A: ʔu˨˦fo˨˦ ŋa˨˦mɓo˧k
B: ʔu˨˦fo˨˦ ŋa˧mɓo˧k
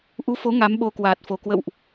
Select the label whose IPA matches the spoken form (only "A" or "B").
A